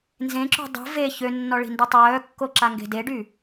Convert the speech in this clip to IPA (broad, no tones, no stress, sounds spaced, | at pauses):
n z ẽ ǁ ṳ dˤ ṳ v e ç ø nː ɔ ɭ i̤ n d u tˤ œː kː o ǁ a ŋ ɡ e̤ d e ɖ y